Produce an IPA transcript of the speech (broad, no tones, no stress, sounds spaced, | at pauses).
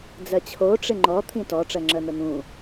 d͡z ɜ t͡ɕʰ o ʈ͡ʂ ɪ ŋ͡ǃ ɔ t̪ʰ ĩ t ɔ ʈ͡ʂ ɜ ŋ͡ǁ ɜ n̪ ə n̪ ũ